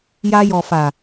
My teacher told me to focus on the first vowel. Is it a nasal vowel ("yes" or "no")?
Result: no